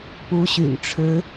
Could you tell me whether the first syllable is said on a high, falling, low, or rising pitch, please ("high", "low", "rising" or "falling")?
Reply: rising